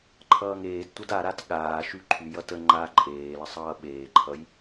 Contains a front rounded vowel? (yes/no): yes